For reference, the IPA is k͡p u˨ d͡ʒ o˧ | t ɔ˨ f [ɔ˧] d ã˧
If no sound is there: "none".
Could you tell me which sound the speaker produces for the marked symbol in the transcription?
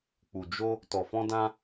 ɔ̃˧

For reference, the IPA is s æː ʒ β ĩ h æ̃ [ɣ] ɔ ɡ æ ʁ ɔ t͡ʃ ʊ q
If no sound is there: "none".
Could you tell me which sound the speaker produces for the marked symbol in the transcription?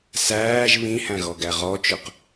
ɣ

